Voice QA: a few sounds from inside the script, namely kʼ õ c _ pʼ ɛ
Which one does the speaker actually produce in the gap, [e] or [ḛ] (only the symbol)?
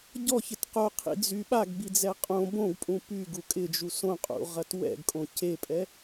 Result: e